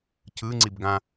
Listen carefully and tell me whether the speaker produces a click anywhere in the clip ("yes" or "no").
yes